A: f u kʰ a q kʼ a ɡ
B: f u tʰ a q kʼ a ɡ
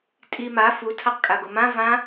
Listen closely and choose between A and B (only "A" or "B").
B